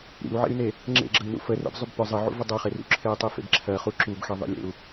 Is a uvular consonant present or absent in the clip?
present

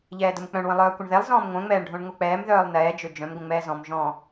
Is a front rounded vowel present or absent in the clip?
present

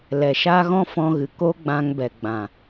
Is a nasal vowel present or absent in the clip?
present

